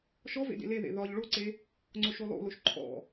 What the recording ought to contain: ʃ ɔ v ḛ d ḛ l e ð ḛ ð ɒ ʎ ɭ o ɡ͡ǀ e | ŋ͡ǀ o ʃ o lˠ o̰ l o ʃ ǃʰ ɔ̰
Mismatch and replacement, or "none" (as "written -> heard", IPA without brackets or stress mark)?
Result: ɡ͡ǀ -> ǀ